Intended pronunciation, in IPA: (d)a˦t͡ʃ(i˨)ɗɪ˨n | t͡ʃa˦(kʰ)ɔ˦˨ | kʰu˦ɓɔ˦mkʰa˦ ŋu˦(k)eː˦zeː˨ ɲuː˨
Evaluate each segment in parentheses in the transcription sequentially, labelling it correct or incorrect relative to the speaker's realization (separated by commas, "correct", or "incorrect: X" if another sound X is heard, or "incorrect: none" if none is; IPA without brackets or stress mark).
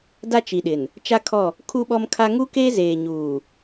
correct, correct, correct, correct